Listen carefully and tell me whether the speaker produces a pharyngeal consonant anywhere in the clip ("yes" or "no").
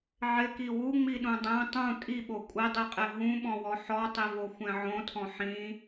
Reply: yes